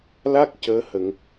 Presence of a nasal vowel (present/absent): absent